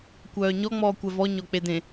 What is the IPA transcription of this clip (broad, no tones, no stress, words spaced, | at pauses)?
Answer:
kʷœːɲɔ ŋ͡mɔːkʷɛvɔ ɲɔk͡pedẽ